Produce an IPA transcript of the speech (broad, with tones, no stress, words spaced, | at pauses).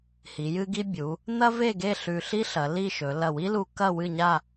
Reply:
hi˩˧jɨ˥ɡi˥ bʲu˩˧ | n̪ɐ˥ve˥˧ɡe˥˧ ɬʉ˧ɬi˥ɬɐ˩˧ li˥˧ʃɵ˩˧ lɐ˧˩wi˥lu˧ kɐ˥˧ wɨ˥˧ɲa˥˧